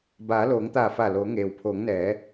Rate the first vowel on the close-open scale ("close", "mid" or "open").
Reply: open